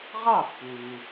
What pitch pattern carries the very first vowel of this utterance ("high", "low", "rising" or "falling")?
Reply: falling